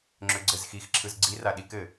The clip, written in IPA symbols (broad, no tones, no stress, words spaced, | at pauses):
ŋ͡ǁøɡ͡ǀɘzxixǁʰɯz ɡ͡ǀira ɗikɘ